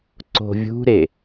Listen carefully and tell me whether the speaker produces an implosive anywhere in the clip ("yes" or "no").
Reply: no